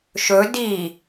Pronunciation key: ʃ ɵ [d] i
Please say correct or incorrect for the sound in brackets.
correct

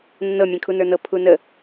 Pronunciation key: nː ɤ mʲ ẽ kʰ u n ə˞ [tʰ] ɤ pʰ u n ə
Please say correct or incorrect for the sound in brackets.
incorrect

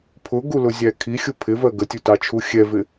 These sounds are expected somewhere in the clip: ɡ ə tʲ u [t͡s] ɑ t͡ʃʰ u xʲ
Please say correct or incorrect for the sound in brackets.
incorrect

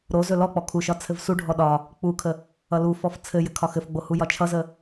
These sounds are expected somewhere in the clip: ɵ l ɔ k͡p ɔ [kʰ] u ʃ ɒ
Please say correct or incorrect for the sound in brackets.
correct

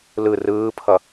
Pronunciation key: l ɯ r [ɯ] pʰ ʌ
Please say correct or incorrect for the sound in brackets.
incorrect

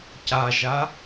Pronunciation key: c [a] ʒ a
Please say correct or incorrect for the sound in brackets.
correct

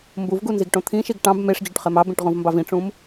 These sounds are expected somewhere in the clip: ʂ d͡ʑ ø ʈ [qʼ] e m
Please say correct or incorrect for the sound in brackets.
incorrect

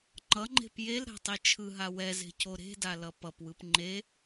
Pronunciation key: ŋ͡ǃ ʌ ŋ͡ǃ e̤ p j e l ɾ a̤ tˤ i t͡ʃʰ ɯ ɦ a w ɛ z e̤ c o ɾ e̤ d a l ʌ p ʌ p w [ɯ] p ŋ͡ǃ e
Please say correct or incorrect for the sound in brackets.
correct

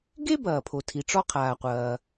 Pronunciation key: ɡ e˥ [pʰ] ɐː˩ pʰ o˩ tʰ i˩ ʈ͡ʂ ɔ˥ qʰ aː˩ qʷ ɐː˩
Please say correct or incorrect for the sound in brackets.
incorrect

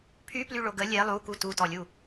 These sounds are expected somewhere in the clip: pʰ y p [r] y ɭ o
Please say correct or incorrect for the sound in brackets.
incorrect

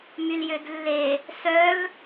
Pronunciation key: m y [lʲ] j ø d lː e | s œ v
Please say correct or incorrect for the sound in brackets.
incorrect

